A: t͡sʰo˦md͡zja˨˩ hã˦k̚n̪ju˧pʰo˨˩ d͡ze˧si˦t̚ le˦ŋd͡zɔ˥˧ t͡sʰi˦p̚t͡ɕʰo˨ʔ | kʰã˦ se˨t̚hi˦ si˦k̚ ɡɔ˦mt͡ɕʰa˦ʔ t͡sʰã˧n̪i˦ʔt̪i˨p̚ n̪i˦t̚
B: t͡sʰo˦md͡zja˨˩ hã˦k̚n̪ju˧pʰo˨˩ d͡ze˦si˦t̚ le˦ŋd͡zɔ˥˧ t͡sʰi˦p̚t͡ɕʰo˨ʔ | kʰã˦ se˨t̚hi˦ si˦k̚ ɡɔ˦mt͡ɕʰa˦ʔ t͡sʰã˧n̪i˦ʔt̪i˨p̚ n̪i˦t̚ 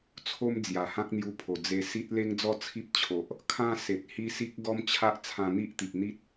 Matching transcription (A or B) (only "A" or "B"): A